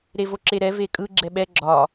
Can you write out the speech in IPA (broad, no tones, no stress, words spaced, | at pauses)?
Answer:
ɾevoǁeɾɛ vekʼɯ ɡ͡ǁɛɓɛ ɡ͡ǁɒ